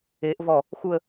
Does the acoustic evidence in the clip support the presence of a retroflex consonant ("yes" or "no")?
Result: no